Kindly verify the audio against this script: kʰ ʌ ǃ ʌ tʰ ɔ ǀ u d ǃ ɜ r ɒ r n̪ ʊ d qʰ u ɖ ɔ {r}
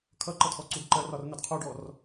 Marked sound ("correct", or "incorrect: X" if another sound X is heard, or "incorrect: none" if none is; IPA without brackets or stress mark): correct